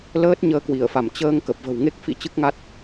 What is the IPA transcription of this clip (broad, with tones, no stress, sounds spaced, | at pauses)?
l əː˦˥ t̚ ɲ əː˧ k w i˧˩ ə̯ f a˧˩ m t͡ɕ əː˧ ŋ k ə˨˩ p̚ v ə̤˨˩ w ŋ e˦˥ k̚ f ḭ˧˥ t͡ɕ ɨ˦˥ k̚ ŋ a˦˥ t̚